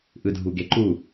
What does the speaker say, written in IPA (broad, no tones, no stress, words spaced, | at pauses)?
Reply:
ʔɯdʱuɡeǃu